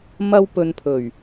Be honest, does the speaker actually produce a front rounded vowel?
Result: no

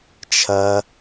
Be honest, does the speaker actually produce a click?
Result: no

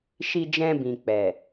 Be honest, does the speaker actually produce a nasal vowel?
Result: yes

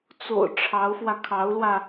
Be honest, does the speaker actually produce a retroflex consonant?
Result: yes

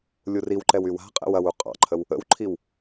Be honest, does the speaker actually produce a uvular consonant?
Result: yes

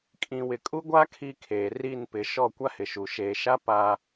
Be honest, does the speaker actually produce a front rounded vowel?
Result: no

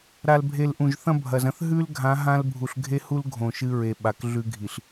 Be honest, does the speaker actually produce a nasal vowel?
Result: yes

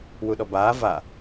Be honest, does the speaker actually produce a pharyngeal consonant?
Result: no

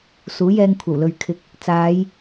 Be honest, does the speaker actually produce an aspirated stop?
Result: yes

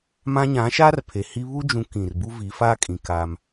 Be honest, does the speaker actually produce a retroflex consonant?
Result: no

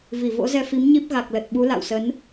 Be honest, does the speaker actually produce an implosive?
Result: yes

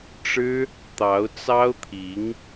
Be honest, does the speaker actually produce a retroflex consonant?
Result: yes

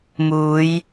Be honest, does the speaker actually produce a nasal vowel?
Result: no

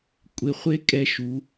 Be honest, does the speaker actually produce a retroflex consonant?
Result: no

